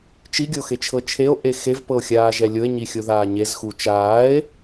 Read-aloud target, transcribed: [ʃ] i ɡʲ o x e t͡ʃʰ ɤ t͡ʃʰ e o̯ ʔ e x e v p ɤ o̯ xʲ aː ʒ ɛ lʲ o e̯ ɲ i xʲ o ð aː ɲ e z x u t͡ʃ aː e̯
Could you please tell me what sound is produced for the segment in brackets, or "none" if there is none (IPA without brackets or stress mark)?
t͡ʃ